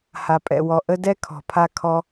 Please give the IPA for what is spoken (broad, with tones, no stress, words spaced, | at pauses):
ha˩pʼɛ̰˩wɔ˩ ʔə˥ dɛ˥kʰɔ̤˩pʰa˧ kʰɔ˧